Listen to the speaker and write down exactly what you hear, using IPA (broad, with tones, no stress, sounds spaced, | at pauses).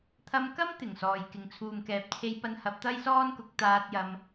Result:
t̪ʰ ɐ˧ m k ɐ˥ m t̪ ɪ˨˩ ŋ s ɔː˨ j k ɪ˨ ŋ t͡sʰ uː˨ m k ɛː˨ p̚ t͡sʰ e˧ j p ɐ˧ n h ɐ˨˥ p̚ t̪ ɐ˥ j s ɔː˥ n k ʊ˨˥ k̚ t̪ aː˥ t̚ j ɐ˥ m